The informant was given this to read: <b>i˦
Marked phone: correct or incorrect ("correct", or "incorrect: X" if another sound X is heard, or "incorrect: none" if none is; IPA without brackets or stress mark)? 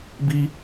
correct